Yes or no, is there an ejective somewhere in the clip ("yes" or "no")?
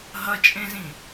yes